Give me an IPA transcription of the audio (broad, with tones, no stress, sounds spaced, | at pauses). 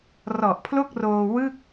r ɔ˨˩ ʔ pʰ l o˥˩ k̚ r oː˧ w ɯ˥˩ k̚